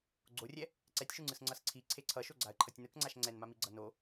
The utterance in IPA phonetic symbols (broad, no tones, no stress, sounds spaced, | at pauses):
ɡ͡ǀ o rʲ ɛ | ǀ ɛ tʲ ʃ u ŋ͡ǀ ɯ s ŋ͡ǀ ʌ s ǀʰ i ǀʰ e ǀʰ ʌ ʃ o ɡ͡ǀ a ə̯ ǃʰ ʌ tʲ n ɯ k ŋ͡ǀ a ʃ ŋ͡ǀ ɛ n m a m i ɡ͡ǀ ʌ n o